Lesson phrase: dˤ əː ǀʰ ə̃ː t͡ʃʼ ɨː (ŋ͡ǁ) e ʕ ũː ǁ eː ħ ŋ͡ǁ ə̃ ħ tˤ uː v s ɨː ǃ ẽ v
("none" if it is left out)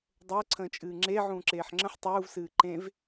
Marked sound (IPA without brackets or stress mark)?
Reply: ŋ͡ǁ